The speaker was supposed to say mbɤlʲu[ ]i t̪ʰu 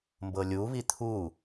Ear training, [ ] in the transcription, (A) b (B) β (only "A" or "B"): B